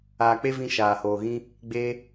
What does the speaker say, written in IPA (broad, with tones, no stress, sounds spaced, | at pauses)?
aː˧ k͡p e˦ v ĩ˦ ʃ aː˧ h oː˧ ɣ ĩ˦ | ɡ͡b eː˦